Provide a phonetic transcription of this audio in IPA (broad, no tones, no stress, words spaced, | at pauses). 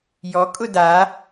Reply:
jɔkʼʊ da